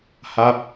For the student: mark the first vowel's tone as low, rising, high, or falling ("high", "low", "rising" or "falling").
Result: falling